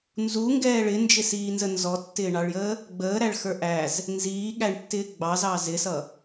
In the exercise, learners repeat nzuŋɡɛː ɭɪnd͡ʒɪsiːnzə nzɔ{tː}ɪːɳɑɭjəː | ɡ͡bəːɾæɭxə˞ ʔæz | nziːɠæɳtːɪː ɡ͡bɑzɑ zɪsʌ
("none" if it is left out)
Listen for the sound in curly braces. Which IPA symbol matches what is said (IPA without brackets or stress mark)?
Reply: tː